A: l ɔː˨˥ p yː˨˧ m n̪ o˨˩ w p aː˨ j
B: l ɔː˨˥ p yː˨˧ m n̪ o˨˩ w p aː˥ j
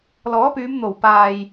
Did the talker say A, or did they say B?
A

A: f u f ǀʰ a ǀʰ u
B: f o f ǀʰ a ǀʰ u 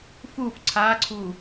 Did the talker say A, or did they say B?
A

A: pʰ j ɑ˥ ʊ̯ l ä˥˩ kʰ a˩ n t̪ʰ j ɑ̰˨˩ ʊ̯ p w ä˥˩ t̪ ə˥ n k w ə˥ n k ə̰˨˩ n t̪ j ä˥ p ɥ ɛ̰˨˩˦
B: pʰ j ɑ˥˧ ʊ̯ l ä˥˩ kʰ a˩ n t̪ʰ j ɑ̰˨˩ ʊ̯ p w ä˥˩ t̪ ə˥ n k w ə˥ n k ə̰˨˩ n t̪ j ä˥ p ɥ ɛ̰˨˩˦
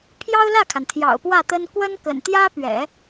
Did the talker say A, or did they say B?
A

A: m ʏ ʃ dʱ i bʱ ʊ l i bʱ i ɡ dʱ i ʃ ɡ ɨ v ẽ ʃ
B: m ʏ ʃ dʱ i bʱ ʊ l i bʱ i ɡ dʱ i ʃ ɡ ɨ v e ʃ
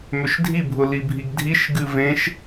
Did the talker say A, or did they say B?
A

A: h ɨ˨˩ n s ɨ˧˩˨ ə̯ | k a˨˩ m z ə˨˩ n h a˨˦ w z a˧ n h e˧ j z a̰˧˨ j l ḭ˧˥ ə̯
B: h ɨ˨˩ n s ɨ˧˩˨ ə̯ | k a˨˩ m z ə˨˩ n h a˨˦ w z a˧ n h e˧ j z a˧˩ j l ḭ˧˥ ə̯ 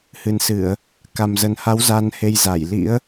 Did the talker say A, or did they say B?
B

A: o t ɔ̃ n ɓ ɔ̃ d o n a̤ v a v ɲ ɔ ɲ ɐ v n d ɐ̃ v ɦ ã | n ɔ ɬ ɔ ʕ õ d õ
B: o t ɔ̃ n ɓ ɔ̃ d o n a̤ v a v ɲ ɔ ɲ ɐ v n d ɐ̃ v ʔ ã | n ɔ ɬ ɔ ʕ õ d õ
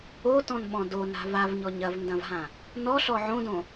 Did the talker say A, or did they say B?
A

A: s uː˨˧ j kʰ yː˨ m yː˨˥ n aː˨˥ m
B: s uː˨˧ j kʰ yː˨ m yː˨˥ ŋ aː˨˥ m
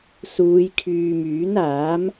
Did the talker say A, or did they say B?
A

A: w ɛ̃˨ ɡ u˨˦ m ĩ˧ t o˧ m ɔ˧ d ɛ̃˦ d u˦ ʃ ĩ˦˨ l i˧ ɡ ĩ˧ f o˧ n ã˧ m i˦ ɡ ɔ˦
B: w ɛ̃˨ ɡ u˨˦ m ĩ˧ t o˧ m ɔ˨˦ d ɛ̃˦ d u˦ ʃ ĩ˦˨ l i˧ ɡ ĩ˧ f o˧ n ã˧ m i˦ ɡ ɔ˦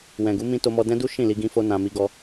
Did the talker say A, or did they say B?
A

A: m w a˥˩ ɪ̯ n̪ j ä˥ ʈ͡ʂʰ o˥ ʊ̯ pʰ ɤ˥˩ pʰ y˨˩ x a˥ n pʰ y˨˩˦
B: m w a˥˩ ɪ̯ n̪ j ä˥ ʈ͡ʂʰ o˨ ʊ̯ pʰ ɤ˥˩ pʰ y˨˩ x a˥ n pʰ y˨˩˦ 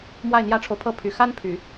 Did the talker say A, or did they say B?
B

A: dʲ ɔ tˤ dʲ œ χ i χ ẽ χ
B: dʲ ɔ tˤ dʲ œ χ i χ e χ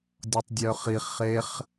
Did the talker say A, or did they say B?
B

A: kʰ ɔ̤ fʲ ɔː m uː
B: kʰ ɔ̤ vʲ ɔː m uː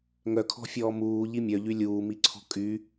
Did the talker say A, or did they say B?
A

